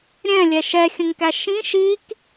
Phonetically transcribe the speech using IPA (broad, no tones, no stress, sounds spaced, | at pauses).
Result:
ɾʲ ɛ̃ lʲ ɛ ʃ ɛ xʲ ə̃ ŋ k æ ʃ ĩ ʃ i k